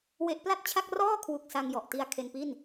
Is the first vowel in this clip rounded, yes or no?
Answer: no